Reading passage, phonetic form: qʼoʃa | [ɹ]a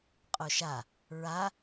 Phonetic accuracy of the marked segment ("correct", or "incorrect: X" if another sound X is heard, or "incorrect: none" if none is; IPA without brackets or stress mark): correct